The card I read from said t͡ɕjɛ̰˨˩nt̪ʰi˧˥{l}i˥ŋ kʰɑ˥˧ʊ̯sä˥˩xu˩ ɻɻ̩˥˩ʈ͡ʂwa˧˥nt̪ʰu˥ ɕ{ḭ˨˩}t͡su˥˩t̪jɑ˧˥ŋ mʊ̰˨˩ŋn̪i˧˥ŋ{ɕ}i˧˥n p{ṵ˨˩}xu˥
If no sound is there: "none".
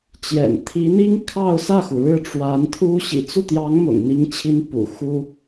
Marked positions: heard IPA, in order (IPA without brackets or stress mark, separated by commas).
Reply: n̪, ḭ˨˩, t͡ɕʰ, ṵ˨˩